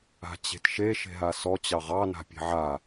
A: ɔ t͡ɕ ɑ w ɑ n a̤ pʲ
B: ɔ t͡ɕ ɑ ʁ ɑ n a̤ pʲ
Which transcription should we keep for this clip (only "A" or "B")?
B